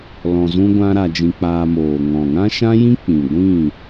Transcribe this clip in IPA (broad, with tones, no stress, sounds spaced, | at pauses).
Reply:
l ɔ̃˧ z ũ˦ ɡʷ ã˦ ɾ a˧ d͡ʒ ĩ˧ k͡p aː˧ m oː˨ ŋ ɔ̃˨ ŋ ã˦ ʃ ã˦ j ĩ˦ k͡p ĩ˨ ɡʷ ĩ˦˨